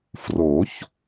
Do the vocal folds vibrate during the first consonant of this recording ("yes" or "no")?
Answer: no